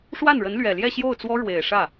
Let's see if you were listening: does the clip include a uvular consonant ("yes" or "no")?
no